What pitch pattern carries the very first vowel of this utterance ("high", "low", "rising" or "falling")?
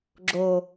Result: low